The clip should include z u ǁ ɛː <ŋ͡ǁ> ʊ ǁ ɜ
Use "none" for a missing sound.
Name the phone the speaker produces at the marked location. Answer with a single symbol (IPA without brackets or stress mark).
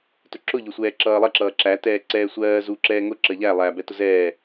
ŋ